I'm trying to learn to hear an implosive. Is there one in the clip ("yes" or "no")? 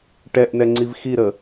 no